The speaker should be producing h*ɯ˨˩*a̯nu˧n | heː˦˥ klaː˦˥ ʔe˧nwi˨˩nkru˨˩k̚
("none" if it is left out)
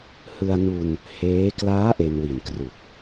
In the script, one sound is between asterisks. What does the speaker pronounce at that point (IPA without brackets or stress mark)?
ɯ˧